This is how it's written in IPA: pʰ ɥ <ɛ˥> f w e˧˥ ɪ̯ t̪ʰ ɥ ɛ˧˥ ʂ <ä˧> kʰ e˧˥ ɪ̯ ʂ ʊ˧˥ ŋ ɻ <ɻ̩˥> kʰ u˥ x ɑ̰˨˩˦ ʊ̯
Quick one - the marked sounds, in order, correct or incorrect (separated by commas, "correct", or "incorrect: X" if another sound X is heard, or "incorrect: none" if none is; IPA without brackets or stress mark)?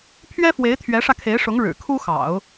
correct, correct, incorrect: ɻ̩˨˩